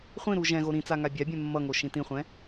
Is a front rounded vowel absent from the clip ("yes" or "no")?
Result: yes